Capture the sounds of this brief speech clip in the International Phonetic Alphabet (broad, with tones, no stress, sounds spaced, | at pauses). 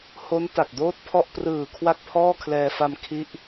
h o˦˥ n t a˨˩ k̚ d oː˥˩ t̚ pʰ ɔ˥˩ ʔ p r ɯː˨˩ kʰ w a˥˩ k̚ pʰ ɔː˥˩ kʰ l ɛː˧ f a˧ m kʰ i˦˥ ʔ